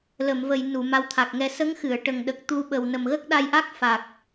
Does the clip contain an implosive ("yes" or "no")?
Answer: yes